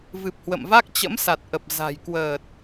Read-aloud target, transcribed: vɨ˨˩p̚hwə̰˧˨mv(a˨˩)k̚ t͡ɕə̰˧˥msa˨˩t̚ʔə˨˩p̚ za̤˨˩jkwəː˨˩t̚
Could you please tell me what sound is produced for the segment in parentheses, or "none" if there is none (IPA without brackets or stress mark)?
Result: a˦˥